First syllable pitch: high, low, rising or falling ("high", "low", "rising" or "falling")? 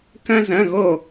high